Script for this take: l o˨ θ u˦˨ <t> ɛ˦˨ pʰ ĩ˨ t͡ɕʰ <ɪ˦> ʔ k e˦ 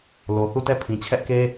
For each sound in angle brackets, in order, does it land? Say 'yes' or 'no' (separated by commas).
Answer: yes, no